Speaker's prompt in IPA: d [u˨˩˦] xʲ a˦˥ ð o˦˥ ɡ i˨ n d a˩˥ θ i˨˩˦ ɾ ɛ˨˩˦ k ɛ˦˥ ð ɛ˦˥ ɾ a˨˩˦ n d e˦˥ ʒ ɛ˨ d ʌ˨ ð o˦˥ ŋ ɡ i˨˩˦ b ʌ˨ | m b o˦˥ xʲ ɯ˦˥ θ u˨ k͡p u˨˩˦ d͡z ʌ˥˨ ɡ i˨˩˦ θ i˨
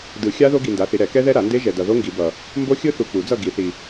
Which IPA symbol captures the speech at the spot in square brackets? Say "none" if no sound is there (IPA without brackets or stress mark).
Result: ɯ˨˩˦